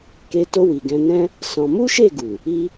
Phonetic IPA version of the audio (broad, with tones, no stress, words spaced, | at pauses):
ke˧to˧ wi˨ɡɛ̃˧nɛ̃˦ | sɔ̃˧ mu˦ʃe˦˨ɡu˨ | i˧